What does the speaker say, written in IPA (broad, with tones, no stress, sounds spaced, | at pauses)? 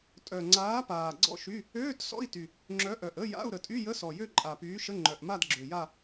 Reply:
tʼ œ˨˩ ŋ͡ǀ aː˨˥ p aː˨˩ ɡ͡ǀ ɔ̰˥˧ ʃ y˧˥˧ | øː˧˥˧ t s ɔ̰˧˥˧ i̯ t y˨˩ | ŋ͡ǁ œ˨˥ ʔ œ˨˩ ʔ ə˧˥˧ j a̰˧˥˧ u̯ ɾ ə˨˩ tʼ y˧˥˧ j ə˧˥˧ s ɔ˨˩ j ø˥˧ ǃʼ a˨˩ p yː˨˥ ʃ ə˧˥˧ ŋ͡ǃ œ˨˩ ʔ m a˥˧ d ɡ͡ǁ ø˨˩ j a˥˧